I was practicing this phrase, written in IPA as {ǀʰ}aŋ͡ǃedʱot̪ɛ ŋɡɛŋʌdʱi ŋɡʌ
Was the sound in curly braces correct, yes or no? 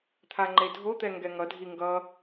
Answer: no